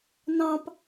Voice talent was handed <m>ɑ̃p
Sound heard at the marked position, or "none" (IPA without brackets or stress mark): n